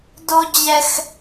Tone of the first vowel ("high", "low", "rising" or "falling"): high